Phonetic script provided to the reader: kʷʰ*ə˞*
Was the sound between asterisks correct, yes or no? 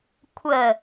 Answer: no